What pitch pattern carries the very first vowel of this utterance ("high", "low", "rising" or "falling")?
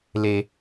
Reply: high